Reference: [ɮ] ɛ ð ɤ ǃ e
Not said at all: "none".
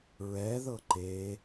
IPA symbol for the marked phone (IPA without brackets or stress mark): ɹ